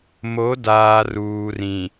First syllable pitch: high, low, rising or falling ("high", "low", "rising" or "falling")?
rising